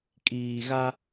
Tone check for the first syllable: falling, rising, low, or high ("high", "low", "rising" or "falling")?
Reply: low